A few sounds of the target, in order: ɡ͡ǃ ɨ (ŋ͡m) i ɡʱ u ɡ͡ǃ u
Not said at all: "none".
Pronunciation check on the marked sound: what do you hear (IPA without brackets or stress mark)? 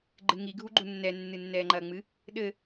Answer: ŋ